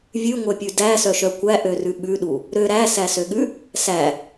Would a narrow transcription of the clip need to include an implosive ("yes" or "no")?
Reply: yes